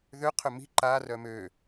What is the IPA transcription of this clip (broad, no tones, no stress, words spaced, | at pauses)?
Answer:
ðø qʰømi̤ ǃa rœmø